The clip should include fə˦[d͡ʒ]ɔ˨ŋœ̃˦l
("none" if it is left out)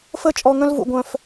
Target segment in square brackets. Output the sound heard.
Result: t͡ʃʼ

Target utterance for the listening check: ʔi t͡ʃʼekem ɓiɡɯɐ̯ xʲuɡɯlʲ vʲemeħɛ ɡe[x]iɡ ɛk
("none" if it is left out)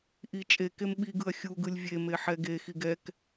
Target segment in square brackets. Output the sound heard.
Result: x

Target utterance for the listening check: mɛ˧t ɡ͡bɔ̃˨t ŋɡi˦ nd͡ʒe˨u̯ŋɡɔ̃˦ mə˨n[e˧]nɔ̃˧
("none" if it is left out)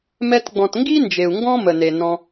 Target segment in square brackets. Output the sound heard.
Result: e˨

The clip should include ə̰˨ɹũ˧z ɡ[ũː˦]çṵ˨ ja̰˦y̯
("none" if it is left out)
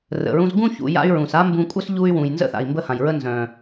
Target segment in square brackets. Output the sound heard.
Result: ũ˦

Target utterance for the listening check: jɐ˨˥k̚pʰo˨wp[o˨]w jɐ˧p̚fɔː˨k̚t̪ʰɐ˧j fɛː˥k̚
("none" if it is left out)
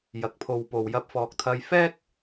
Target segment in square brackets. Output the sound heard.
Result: o˨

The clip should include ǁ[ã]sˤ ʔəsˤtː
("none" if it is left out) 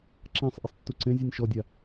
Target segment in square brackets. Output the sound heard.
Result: ã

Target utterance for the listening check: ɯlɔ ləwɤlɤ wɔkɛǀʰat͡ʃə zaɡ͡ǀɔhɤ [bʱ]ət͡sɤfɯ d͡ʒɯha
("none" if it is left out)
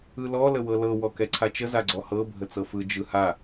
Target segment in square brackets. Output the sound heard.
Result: bʱ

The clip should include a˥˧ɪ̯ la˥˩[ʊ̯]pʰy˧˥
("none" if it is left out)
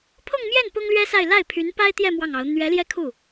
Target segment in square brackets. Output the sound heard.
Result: ɪ̯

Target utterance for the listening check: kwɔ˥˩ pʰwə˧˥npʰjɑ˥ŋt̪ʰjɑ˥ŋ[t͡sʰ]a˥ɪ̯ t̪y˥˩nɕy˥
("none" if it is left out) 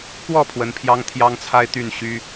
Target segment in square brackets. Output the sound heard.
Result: t͡sʰ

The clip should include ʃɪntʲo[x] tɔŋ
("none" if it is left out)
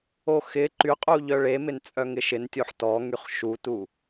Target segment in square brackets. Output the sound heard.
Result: ħ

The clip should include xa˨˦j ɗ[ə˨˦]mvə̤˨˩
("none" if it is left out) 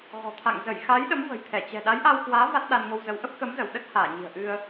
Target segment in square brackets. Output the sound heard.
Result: ə˨˦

